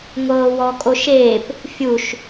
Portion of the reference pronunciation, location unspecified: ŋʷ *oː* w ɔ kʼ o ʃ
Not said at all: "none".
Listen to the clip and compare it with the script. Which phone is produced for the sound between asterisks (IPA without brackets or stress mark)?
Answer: ɤː